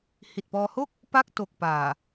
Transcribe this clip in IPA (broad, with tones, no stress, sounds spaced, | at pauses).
h i˨˩ t̚ p ɔː˧ h o˥˩ k̚ | p a˥˩ k̚ t o˨˩ k̚ p aː˨˩